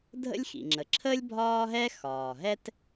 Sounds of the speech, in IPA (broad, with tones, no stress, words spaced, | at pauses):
dʱə̰˥lʲ xḭ˩ŋ͡ǁə˩ ǁʰəː˥lʲ bʱɒː˥ɦɛ˥ xɒː˩ɦɛ˥t